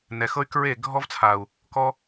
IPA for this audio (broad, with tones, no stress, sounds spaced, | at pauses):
n ɛ˨ x ɤ˦ y̯ k ɹ e˦˨ ɡʱ ɔ˦ v t͡sʰ a˨ u̯ | k ɔ˦